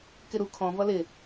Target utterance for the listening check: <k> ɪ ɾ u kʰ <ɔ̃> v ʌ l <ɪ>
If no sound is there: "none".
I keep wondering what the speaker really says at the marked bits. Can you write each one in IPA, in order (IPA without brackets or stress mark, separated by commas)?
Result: k, ɔ̃, ɪ